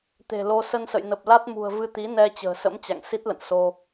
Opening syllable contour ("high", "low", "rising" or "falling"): low